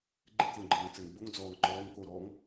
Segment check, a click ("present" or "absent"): present